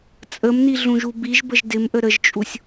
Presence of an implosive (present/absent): absent